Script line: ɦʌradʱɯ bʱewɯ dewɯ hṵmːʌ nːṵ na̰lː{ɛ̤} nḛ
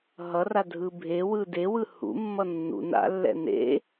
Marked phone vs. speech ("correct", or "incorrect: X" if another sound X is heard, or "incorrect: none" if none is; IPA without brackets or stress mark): incorrect: ɛ̰